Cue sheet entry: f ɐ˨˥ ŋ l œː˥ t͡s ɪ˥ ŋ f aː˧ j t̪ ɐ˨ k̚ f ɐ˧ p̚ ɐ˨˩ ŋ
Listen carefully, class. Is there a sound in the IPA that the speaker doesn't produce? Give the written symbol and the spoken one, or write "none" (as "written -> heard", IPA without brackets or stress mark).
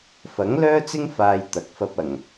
none